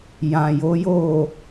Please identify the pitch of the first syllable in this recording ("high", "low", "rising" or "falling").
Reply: low